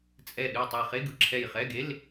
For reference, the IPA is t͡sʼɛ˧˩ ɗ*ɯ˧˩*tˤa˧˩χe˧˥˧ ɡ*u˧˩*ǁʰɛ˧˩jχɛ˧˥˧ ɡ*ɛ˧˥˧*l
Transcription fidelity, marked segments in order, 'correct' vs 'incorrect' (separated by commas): correct, incorrect, incorrect